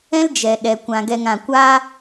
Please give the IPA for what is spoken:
ɛ̃˦ld͡ʒɛ˨ ɗɛ˨ kʷã˧ɡɛ˧ŋã˧ kʷaː˦

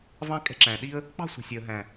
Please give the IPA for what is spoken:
vɑ̃˦kʼɛ̤˦ǁæ̃˨ɗi˦ə̯ | k͡pɑ̤˦˨sʷi̤˨sʲɛ˨ə̯ɦæ̃˨

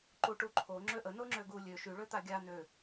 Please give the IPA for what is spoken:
ǃuʈuǃʰo ŋ͡ǁøʔə noŋ͡ǁøɡu lʲø ʃy ɭøt̪aɡʲa nø

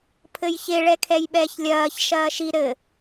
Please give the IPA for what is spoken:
pʰɘjçe ɭɛkʰɛjɓɛːçlʲɐːç ʃɐːʃi ɾɘ

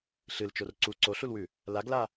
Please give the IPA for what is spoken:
ɬɨlt͡ʃor ǀu ǀoɬulwʉ | laɡla

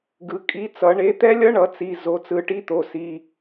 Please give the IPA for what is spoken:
ɡɯ˩˧ kʼi˩˥t͡sʌ˩˧ ɳe˩˥t̪ɛ˦˥lʲʌ˦˥ɳʌ˩˧ t͡si˩˧˩ zo˩˧˩t͡sɯ˩˧˩ ʈi˧˥˧t̪o˩˧˩si˩˧˩

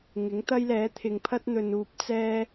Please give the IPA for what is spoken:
ŋɪ˨˥ŋt̪ɐ˥jlɛː˨˥ t̪ʰɪ˨ŋpʰɐ˥t̚n̪ɵ˨n uː˧p̚t͡sɛː˥

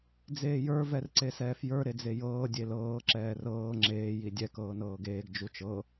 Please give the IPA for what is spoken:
d͡zeːjə˞ vɛrǀesɛːfjə˞ ɾed͡zejɤː dʲelɤː ǁɛːrɤː ŋ͡ǁeː jidʲɛ kɤːnɤːɡeːɡ d͡ʒut͡ʃɤ

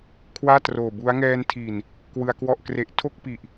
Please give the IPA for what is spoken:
kʰwaː˥˩ troː˨˩bu˦˥a̯ ŋɛː˧ntʰi˨˩n | kwɯ˧a̯kwɔ˥˩ʔkre˦˥ʔ tʰo˥˩k̚pi˨˩ʔ

